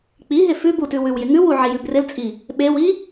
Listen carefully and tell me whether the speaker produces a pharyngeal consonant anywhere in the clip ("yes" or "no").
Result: yes